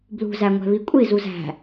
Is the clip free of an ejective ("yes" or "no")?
no